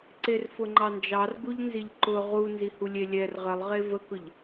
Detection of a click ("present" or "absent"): present